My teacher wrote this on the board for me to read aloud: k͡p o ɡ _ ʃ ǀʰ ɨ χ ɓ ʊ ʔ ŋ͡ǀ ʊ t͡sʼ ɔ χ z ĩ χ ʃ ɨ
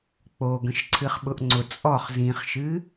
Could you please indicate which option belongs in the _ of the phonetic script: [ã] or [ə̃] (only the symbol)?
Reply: ə̃